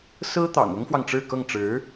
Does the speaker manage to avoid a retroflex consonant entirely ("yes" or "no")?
no